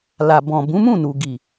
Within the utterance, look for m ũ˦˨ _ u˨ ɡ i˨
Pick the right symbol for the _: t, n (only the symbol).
n